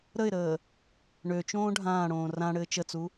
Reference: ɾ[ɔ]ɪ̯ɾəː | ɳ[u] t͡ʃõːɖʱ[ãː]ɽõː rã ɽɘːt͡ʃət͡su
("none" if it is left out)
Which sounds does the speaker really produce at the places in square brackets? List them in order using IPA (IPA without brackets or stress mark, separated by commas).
ə, ø, ãː